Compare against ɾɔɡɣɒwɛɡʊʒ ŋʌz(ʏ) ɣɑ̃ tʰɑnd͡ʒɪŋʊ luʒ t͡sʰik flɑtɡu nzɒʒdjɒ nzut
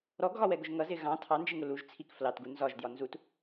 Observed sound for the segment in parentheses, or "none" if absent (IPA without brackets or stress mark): ɪ